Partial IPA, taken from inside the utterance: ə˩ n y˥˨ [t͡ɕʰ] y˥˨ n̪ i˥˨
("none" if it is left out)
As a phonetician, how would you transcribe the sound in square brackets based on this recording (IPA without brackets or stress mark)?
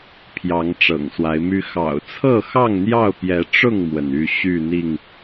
ɕ